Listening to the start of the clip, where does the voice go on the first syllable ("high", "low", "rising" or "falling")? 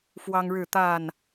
high